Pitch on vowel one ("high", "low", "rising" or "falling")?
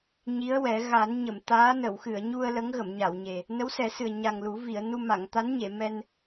rising